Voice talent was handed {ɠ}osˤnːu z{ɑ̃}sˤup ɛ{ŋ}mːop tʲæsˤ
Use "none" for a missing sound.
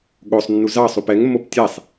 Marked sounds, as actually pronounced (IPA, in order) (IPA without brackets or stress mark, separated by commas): ɠ, ɑ, ŋ